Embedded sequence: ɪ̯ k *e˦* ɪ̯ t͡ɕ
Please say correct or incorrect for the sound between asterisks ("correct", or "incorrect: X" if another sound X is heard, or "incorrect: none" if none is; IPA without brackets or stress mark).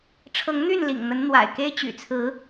correct